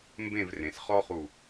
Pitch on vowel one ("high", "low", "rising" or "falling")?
falling